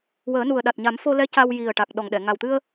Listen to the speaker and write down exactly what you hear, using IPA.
wəː˨˩˦nu˨˩ə̯ɗa˨˩t̚ɲa˨˩˦m fo˧lɛ˧˥ ca˧w ji˨˩ə̯ ʈa˨˩k̚ ɗɔ˨˩ŋɗɛ˨˩˨ ŋa˨˩wt̪ɨ˧ə̯

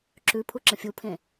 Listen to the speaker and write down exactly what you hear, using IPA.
ǁʉpʰu ǁə̃fʲupʰẽ

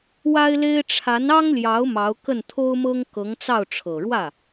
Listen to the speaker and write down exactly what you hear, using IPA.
wa˥ɪ̯le˥ɪ̯ ʈ͡ʂʰa˧˥n ɑ˥ŋljɑ˧˥ʊ̯ mɑ˧˥ʊ̯kə˥˩nt̪ʰo˥ʊ̯mɤ˥ŋ kɤ˧˥ŋt͡sɑ˥˩ʊ̯ ʈ͡ʂʰɤ˨˩ɻwä˥˩

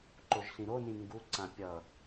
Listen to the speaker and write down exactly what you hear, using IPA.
ǃoʒɬĩɾonĩ ŋɡuǀã pʲʌ

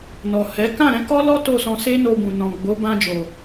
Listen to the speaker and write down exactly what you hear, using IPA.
nɔ˨ hɛ˨˦ kã˦˨ɾɛ̃˨˦kɔ˦lɔ˦ to˦˨sɔ̃˧ se˦no˧ bũ˨nɔ̃˨ɡ͡bo˨˦ bã˧d͡ʒo˨

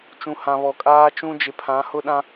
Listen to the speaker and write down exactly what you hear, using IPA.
t͡ʃũ˨ hã˨βɔ˨kʼaː˦t͡ʃũ˦ d͡ʒɪ˨pʰã˨˦ hʊ˦ɗã˦

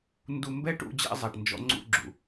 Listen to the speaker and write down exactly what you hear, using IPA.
ndu˧mbɛ˦ʈṵ˧ d͡ʑɛ̰˦zˤɛ˨ʈ nd͡ʒɔ̰˧ŋ͡ǀṵ˧ɡ͡ǁṵ˨

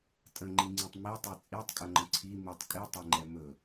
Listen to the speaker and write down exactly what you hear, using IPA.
tʼə̃ŋ͡ǃiŋ͡ǀĩtˤ mitˤɛ t͡sʼitˤkʼəŋ͡ǃə̃ ǀʰi mitˤ kʼitˤɛŋ͡ǃɛ mɵ

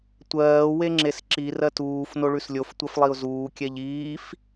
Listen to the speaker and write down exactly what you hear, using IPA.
tʷɜː weŋ͡ǁesǁi rɜtuːf noɭʉslʲof tʷɜflˠiʊ̯zuː kʲɛʎiːf

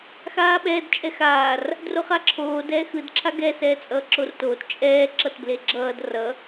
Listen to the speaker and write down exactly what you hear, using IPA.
xaːɓɛːd t͡ʃʼɛxaːr | droχaǁʰoːd ɛːxɯd ǁʰaɡɛ sɛːt͡sʼʌːǁortoːt t͡ʃʼɛː ǁʌtbleɡ͡ǁʌːd rʌ

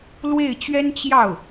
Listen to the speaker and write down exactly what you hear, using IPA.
lwe˥˩ɪ̯ t͡ɕɥɛ˥n t͡ɕjɑ˥˩ʊ̯

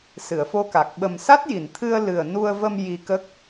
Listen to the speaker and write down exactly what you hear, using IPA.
sɨ˨˩˨ə̯fo˧ka˨˩k̚ ɓə˨˩msa˦˥t̚ji˨˩˨nt̪ʰɨ˧ə̯ lɨ˨˩ə̯ nu˧ə̯və˧m ji˧kə˦˥k̚

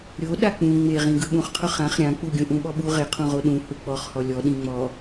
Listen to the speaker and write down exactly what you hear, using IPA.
ɾʲo ɗak͡pũ ŋ͡meʁĩ ɡɯɓũχqʰʊ χãχ ɾʲãk͡pu ɡʲũʔũɓɔɓu ʁeqʰũʁo ɗũ huk͡pɔχhɔ lʲɔ ɗĩŋ͡mɔ

